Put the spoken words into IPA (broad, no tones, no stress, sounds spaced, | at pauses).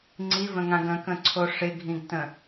ŋ͡ǀ i v ə̃ ŋ ã ɡ ə̃ k ə̃ ǀʰ o ʂ ɪ ɡʱ ĩ ɡ t ə̃